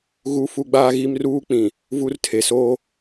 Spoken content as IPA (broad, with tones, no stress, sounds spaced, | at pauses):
ɣ u˦ f u˦ ɡ͡b aː˦ ɣ i˦ m r uː˦ k͡p ĩ˨ | v u˦ r tʰ e˨ s oː˦